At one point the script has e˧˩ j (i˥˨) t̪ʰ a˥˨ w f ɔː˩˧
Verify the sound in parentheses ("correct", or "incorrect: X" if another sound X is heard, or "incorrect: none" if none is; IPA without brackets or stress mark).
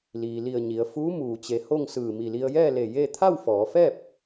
incorrect: e˥˨